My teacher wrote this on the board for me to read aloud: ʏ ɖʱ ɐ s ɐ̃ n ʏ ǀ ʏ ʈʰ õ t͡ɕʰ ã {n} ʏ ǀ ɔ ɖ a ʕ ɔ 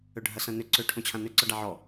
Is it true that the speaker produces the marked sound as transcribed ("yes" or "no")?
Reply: yes